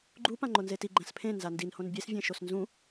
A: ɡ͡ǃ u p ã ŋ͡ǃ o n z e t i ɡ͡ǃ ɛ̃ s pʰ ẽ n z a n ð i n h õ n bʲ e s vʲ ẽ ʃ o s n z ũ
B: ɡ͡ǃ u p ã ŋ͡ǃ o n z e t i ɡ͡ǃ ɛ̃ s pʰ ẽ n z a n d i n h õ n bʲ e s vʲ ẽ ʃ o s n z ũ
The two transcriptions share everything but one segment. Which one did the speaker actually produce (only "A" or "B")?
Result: B